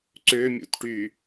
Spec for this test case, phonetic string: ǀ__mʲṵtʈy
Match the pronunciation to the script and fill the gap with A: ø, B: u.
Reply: A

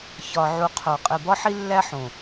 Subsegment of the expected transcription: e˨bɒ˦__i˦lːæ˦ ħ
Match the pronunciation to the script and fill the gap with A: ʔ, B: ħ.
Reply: B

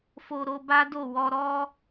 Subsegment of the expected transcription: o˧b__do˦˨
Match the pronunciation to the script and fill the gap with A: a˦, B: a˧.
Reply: A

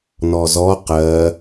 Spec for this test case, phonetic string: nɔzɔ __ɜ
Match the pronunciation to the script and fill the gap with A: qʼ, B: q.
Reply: B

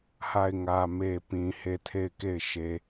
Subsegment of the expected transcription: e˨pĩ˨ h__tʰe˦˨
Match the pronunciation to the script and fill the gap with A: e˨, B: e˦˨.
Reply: B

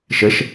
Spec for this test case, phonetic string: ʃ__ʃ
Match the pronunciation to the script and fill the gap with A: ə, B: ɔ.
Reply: A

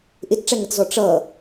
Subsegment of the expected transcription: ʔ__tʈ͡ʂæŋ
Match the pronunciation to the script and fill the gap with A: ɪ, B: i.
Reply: A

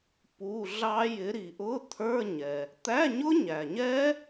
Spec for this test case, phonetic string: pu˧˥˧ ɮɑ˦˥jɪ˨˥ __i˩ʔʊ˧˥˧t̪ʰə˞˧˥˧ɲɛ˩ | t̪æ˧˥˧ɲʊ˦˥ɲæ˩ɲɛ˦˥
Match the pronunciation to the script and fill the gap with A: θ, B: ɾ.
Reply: B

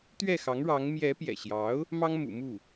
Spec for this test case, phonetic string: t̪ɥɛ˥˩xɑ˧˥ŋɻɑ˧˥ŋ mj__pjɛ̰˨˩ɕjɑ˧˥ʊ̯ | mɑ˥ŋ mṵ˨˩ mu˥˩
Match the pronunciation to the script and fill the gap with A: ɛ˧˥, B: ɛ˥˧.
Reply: A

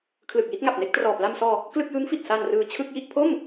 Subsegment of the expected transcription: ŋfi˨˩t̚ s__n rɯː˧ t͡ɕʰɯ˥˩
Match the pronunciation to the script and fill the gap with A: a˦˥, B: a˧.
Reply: B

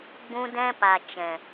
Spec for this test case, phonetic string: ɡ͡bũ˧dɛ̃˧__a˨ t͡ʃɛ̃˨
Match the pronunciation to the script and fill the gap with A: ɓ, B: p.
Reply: B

